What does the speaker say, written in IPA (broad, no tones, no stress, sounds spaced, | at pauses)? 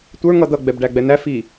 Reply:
tʷ ə˞ ŋ ʌ d̪ ʌ ɡ͡b ɛ b ɖ æ ɡ͡b ɛ n æ f i